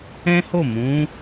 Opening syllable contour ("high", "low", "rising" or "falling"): high